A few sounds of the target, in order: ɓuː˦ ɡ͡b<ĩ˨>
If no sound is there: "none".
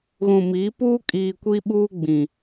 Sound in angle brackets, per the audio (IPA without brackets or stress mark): ĩ˨